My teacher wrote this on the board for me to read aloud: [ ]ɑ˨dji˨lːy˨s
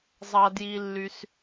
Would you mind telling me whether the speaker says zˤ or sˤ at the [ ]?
zˤ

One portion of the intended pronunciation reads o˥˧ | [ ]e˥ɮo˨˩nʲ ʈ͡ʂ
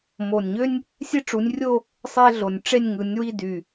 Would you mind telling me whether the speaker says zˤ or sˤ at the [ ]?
sˤ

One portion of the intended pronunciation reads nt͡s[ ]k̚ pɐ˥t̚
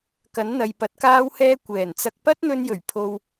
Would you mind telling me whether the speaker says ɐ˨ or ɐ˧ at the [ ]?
ɐ˧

